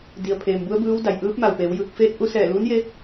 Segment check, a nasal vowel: absent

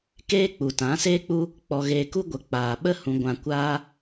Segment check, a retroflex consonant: absent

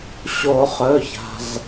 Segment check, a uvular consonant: present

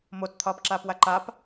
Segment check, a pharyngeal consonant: absent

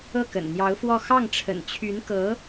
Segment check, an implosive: absent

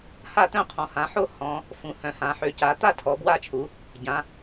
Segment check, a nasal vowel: present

